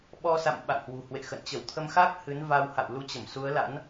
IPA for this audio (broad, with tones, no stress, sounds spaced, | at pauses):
ɓ ɔ˧ s a̰˧˨ m ɓ a̰˧˨ ŋ h w ṳ˨˩ h w ḛ˧˨ x ə̰˧˨ n t͡ɕ ə˧˩ w t̪ʰ ə˧ m x a˦˥ k̚ h ɨ˨˦ n v a˧ w h a̰˧˨ w l u˧ t͡ɕ ə˧˩ m s u˨˦ ə̯ l a̰˧˥ n